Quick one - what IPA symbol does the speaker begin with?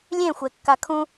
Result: lʲ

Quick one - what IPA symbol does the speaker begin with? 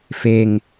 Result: f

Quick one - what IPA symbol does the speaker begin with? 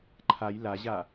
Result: ǃʰ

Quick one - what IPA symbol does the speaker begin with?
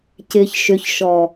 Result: c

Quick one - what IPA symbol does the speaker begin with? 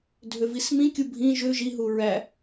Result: dʱ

